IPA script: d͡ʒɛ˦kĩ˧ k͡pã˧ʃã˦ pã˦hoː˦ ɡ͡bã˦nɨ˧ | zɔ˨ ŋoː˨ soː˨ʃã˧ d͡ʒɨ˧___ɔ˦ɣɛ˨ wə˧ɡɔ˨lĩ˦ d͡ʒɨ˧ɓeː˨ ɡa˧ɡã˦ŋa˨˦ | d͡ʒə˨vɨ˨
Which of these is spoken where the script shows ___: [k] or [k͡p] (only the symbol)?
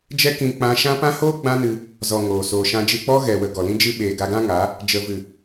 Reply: k͡p